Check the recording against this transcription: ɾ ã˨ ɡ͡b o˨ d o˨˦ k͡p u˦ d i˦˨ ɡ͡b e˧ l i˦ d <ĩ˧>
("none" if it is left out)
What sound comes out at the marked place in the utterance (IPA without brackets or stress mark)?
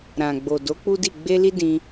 ĩ˧